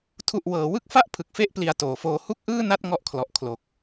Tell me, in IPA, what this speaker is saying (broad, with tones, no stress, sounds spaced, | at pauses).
tʰ u˨˩ ʔ w ɤː˩˦ w ɯ˦˥ k̚ f a˥˩ ʔ pʰ ɯ˨˩ k̚ f e˥˩ ʔ p l i˨˩ a̯ t oː˩˦ f oː˧ h u˥˩ k̚ ʔ ɯː˥˩ n a˥˩ t̚ ŋ ɔ˦˥ ʔ kʰ l ɔ˨˩ ʔ kʰ l o˨˩ k̚